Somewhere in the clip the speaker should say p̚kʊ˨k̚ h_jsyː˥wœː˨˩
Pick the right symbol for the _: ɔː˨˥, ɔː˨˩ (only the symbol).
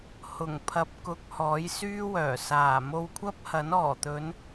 ɔː˨˥